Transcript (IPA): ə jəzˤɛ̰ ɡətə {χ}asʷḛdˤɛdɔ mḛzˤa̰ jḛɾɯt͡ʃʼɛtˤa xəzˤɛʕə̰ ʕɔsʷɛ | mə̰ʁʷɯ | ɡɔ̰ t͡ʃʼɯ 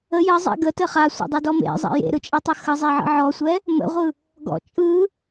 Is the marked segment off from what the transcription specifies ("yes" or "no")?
no